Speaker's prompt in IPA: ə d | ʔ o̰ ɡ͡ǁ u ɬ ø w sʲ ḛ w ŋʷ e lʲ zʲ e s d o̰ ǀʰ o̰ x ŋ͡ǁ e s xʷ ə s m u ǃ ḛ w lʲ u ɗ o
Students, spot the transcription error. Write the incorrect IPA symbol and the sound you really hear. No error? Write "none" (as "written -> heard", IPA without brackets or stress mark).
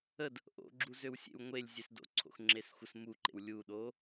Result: ɬ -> z